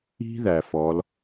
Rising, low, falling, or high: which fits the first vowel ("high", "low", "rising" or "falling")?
high